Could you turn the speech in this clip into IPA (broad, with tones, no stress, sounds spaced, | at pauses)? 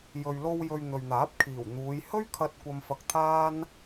j ɵ˧ ɥ l o˧ w j ɵ˧ ɥ n̪ ɵ˨ ɥ n̪ aː˨˥ p̚ kʰ iː˨˩ w n̪ uː˨˧ j h ɵ˥ ɥ kʰ ɐ˧ t̚ kʷ ɐ˥ m f ɐ˥ k̚ t̪ʰ aː˥ n